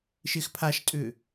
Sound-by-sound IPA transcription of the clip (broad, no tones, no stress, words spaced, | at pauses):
ʃɪːxpʰaʃtʼʏː